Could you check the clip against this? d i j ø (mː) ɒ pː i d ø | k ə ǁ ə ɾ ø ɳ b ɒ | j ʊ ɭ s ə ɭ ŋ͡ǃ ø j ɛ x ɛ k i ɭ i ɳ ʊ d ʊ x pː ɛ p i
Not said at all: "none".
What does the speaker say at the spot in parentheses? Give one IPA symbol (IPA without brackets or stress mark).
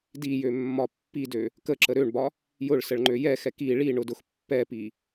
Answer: mː